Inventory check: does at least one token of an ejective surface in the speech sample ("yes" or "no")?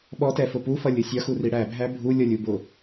no